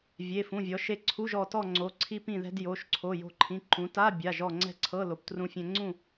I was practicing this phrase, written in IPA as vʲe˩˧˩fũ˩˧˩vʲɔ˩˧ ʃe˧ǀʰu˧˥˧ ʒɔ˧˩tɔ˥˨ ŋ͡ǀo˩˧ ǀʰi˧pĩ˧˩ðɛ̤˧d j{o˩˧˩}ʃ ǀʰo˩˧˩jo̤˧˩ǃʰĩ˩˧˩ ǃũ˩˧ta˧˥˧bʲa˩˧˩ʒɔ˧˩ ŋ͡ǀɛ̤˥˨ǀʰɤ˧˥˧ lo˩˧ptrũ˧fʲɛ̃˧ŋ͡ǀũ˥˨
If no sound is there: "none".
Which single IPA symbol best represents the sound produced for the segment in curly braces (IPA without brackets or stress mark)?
o˩˧˩